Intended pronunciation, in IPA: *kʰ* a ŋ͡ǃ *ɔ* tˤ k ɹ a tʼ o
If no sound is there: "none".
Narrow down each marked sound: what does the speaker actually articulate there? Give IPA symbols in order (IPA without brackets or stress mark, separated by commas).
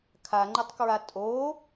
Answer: kʰ, ə